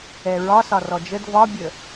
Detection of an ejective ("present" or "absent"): absent